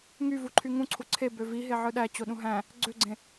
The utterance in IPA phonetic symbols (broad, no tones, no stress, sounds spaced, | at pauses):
ŋ y v u ǃʰ y ŋ ũ ǀʰ u ǀʰ e b ø v i ɦ e ʕ ɯ ɗ æ t͡ɕ o ɗ ũ ɦ æ̃ | ɡ͡ǀ ø ɡ͡ǀ ẽ